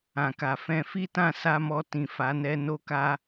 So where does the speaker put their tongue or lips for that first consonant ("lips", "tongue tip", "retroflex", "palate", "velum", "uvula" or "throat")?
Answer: velum